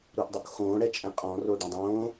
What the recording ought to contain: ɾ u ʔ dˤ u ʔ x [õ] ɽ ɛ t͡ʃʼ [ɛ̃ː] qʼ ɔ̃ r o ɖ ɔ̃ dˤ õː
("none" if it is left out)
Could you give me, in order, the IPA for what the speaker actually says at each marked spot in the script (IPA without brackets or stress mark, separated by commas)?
õː, ɛ̃